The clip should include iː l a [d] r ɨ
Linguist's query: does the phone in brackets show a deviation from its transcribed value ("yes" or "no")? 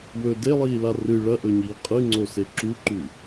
yes